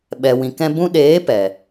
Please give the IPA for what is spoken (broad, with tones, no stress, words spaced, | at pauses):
ɓɛ˨wĩ˨kɛ̃˧ bũ˧ɗeː˨˦ pɛ˨